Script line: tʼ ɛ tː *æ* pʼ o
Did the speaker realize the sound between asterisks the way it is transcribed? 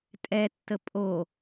no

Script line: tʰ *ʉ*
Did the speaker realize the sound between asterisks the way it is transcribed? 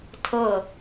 no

